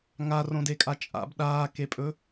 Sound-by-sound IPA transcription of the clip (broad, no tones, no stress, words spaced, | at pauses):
ŋarõdekʼa t͡ʃʼa̰b ɗaːkepʼɵ